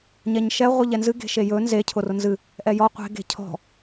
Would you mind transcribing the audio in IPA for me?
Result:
ɲɛɲʃɛ ʁʷɨʎɛnzɨ ɡe̤ʃejɵ nze cʰʊrʊnzɨ | ʔɛjɔ qʷe̤ ɡe̤cʰɔ̤

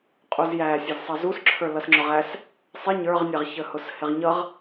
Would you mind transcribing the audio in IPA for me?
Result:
qʼuzjæ sʲʌzsˤʌzusǁʰə˞ lʌsŋ͡ǁʊʁæs | sˤɪ ɲə˞ʁnʲɛʁçəhʊs hɪʁɲʌʁ

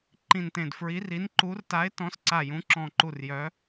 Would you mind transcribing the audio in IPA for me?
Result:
ǃĩ˧˩ntẽ˧˩dfɹi˨˥ri˨˥n ǃu˨˥rta˨˥ɪ̯tɔ̃˨˥s ǀa˧˩jũ˨˥ǁɔ̃˧˩ ǃu˧˩r jœ˨˥

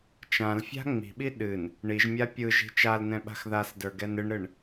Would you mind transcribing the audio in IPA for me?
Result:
t͡ʃãlfʲa̤ ŋ͡mi̤ɓi ɗɨn | ɳiʒmʲa pʲɯ ʒi̤t͡ʃalnɛ̃ ɓa̤xðasdə˞ ɡɛnɨɳɾɨɳ

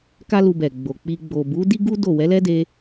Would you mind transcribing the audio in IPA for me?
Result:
ka˦lu˧bɛ˨ ɡ͡bo˨k͡pi˧ ɡ͡bo˨bu˨˦di˦ɡu˦ do˦˨ wɛ˨˦lɛ˦de˧

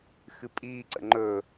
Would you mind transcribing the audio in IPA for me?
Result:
xɨpʼiːǀə̰ ŋ͡ǃɵ

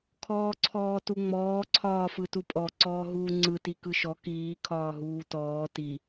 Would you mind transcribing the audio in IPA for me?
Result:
kʰɔːǀʰɔːtuŋ͡mɔː ǀʰɒːfɯtupʼɔ ǀɔːɦuːŋ͡ǀɯ tikɯʃɔ kiː kʰɒːɦuːtɔː ti

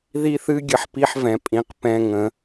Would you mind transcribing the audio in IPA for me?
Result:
ði˦ θɨ˦ ɡʲə˦˨ħpi˦ħvɛ̃˩˥pʼĩ˩˧˩q pɛ̃˦˨ŋə̃˩˥

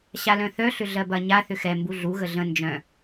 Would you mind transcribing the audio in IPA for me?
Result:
ɕalœ̃θœ ɬʏɮɜbɐ ɲa θʏxɛ mbuɮu ɣəɮə̃ nd͡ʒœ̃

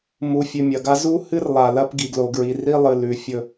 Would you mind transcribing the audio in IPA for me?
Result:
mu˨fʲʉ˨ mʲɐ˨ɡa˦ zu˦hɨ˦r lˠa˨lɐ˦pɡi˨ɡlo˨ ɡɹi˨ri˦lˠɨ˨ lʉ˨ fʲɵ˦

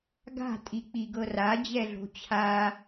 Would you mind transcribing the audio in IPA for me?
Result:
ɡa̤tʼi k͡piɡɤra d͡ʑɛɮo̤t͡ɕʰa

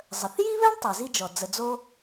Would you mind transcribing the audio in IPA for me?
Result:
zˤə˩θji˥βɛ˥ɳ tˤɛ˩zi˥d͡ʒɔ˩ d͡zə˩d͡zo˥

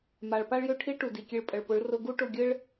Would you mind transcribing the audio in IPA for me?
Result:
ma˨ɭ pa˦ɭjø˦ʈʰi˦ɭʈu˨ di˨kʲe˧ɭ pʼə˨ɭpʊ˨˦ɭ rʊ˦ ɡu˦ʈʊ˦˨ɡʲɘ˦ɭ

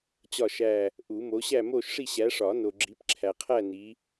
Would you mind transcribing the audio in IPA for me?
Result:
t͡ɕɒ˥˧ʃæ˥˧ | ʔu˨˩˦ mo˨˦ɕæ˥˧mo˥˧ʃʂi˥˧ ɕæ˨˦ʂɒ˨˩˦ no˨ɡ͡ǁi˨˦pǁʰæ˨ qʰæ˥˧ni˨˦

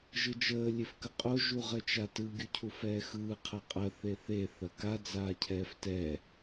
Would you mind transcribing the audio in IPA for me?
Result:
ʒɯd͡ʒəː lʲefkəqʼo ʒuʁət͡ʃatɯ ɡʲucʰufɛːxɯː qʰɐqʼɐ θeθe θɐka d͡zaːcʰɛːftɛː

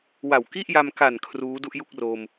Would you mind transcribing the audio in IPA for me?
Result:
wa˨˩wki˥˩ʔ ja˧mka˨˩n kʰruː˦˥ du˥˩ʔju˥˩k̚ro˧m

